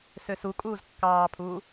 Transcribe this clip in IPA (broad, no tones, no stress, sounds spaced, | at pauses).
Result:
s ø s u kʼ uː z kː ɑː pʰ uː